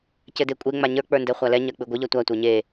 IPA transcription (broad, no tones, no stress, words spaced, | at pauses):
cɘdekʷʼe ŋ͡maɲə˞ k͡pə˞ndɛχʷalɛ ɲɜk͡pɨɡʷɘ ʎɜtʷa tʷə˞ɲe